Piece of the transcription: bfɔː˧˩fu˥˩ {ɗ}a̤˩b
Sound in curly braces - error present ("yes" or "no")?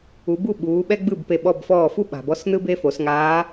yes